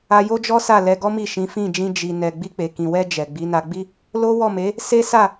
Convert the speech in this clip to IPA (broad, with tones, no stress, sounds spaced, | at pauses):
a˧ j o˦ d͡ʒ ɔ˦ s a˦˨ l ɛ˧ ɡ ɔ˦ m i˦˨ ʃ ĩ˨˦ f ĩ˦˨ d͡ʒ ĩ˧ d͡ʒ i˨ n ɛ˨ ɡ͡b i˧ k͡p e˨ k ĩ˨ w ɛ˧ d͡ʒ ɛ˨ ɡ͡b i˨˦ n a˧ ɡ͡b i˦ | l o˦ w ɔ˦˨ m e˨˦ | s e˦ s a˦˨